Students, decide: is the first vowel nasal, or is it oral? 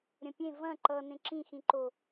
nasal